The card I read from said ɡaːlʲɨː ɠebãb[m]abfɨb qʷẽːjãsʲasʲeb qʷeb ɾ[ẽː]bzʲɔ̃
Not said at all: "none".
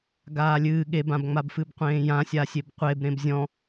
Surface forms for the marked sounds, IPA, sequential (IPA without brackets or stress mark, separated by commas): ŋ͡m, ẽ